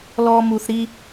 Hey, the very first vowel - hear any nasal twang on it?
no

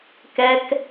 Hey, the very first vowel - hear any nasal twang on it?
no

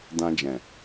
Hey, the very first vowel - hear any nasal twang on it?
yes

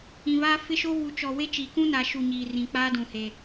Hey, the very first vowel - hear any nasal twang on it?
yes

